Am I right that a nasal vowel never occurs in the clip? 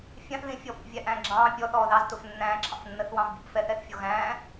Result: no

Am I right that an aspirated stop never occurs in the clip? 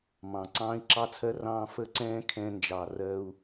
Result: no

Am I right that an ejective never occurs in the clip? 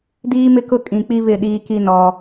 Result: no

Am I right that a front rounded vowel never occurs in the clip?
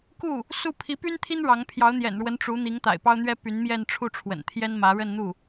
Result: no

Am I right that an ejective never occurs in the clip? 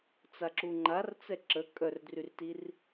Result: no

